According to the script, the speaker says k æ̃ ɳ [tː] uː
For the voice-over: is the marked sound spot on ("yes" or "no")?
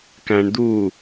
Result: no